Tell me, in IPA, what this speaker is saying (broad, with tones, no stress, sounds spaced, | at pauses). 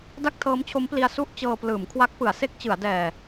d a˥˩ k̚ tʰ ɤː˦˥ m t͡ɕʰ o˦˥ m p l i˧ a̯ s u˥˩ ʔ t͡ɕ ɤː˧ p l ɯː˩˦ m kʰ w a˦˥ k̚ p ɯ˩˦ a̯ s e˥˩ k̚ t͡ɕ ɯ˩˦ a̯ d ɛː˨˩